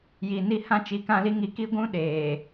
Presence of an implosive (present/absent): present